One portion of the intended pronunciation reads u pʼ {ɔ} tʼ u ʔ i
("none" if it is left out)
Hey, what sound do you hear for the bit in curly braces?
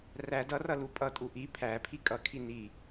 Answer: ʌ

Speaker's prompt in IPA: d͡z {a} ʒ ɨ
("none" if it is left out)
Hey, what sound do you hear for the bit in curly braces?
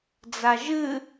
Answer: a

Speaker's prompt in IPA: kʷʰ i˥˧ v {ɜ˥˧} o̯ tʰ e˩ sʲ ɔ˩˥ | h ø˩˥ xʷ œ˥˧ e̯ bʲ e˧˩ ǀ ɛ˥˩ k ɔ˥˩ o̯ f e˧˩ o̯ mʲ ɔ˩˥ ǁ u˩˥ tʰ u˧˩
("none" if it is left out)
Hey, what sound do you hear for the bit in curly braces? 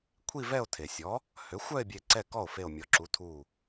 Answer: ɛ˥˧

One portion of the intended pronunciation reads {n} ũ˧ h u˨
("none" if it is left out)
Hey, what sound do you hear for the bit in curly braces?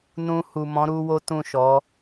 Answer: n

